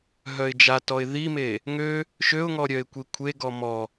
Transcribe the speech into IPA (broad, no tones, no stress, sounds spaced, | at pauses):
ɦ œ ɪ̯ d͡ʒ a t ɔ ɪ̯ ð i m e | ŋ ø | ʃ ø ʊ̯ ŋ ɔ ɾʲ œ ɪ̯ kʷ i kʷʰ e ɡ ɔ m ɔ